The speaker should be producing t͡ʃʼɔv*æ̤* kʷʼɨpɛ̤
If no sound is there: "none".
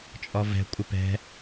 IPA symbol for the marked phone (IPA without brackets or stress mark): ɛ̤